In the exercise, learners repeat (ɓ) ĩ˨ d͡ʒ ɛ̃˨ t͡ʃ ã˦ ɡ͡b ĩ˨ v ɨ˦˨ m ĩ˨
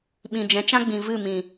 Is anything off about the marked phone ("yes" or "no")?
no